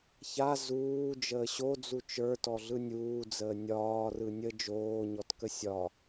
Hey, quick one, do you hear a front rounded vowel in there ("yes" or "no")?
no